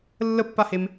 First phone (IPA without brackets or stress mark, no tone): lː